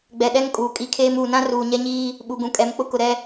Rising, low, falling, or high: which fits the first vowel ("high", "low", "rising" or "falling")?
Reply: low